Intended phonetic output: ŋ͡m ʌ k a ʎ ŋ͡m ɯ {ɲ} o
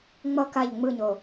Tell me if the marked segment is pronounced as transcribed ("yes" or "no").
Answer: yes